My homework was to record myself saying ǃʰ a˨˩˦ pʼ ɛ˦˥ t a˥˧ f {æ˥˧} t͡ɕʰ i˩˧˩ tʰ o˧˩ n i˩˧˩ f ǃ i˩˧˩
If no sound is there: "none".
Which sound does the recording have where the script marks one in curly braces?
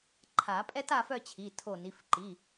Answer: œ˥˧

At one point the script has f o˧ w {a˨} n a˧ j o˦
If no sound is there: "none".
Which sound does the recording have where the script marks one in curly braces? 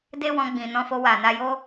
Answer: a˨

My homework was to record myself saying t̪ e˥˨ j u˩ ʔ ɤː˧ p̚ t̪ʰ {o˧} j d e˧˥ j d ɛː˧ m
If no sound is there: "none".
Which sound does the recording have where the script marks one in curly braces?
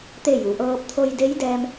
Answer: o˧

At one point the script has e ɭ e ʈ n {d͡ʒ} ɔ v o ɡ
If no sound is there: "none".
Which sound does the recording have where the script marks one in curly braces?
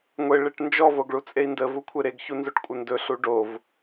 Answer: d͡ʒ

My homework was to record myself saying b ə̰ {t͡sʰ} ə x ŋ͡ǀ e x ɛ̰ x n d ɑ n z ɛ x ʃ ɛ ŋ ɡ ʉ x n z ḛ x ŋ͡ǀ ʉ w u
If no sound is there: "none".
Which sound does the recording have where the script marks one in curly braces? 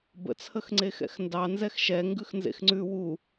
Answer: t͡sʰ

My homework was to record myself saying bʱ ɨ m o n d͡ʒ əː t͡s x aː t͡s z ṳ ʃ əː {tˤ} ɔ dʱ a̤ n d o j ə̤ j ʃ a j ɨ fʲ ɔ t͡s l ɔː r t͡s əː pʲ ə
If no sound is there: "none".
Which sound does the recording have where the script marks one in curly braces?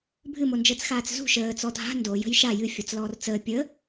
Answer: t͡s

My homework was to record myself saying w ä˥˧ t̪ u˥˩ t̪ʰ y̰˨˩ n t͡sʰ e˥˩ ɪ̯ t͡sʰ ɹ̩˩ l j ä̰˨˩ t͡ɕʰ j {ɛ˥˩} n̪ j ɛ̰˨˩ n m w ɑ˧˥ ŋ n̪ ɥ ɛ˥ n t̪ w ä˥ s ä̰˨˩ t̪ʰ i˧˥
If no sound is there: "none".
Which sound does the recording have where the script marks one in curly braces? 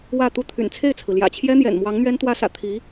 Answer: ɛ˥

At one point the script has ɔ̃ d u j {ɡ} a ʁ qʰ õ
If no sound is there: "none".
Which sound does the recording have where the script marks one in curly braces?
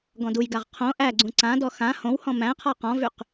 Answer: ɡ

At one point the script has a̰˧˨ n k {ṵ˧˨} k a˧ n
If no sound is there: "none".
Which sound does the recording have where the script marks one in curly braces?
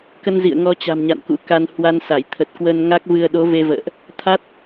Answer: ṵ˧˥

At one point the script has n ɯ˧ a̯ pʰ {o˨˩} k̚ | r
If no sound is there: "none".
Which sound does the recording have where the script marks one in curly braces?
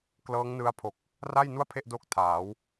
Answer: o˨˩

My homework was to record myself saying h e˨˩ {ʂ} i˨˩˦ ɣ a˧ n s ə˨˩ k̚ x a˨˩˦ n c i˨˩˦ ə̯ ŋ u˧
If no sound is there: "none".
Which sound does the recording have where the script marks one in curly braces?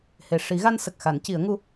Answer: ʂ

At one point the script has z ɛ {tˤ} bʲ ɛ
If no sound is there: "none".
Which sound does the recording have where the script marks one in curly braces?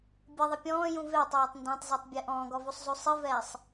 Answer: tˤ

